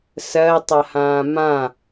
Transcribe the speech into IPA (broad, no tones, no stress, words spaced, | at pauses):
sɜtˤahãː mã